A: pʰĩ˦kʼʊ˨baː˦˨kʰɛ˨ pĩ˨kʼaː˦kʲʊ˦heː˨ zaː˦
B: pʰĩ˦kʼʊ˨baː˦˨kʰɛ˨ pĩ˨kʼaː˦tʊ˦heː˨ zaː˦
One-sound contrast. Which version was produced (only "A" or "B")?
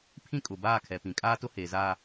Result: B